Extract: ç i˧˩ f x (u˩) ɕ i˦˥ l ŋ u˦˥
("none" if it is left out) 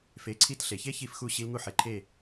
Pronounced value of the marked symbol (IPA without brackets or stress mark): u˧˩